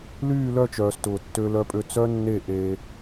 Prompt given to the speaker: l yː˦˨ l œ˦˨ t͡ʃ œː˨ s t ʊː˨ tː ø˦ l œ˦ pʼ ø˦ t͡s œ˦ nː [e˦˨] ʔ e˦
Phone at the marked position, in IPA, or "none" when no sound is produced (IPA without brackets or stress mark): e˦˨